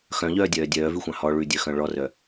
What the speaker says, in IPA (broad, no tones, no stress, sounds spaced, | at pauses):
x œ̃ ʎ œː dʲ œː dʲ œː v ʉ xʷ ɑ̃ h ɔ ɭ ʉ dʲ œ x œ̃ ɭ ɔ r œ